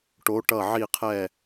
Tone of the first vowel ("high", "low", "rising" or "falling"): rising